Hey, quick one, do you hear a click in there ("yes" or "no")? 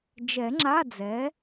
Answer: yes